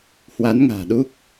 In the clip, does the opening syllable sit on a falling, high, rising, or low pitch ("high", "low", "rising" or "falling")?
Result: rising